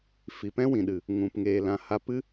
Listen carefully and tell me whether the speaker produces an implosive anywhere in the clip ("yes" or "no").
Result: yes